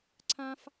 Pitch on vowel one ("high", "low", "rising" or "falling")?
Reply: high